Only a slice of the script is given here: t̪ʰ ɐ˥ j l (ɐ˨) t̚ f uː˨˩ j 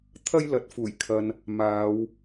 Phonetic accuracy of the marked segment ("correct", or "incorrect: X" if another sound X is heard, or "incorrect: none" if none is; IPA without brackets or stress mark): incorrect: ɐ˨˥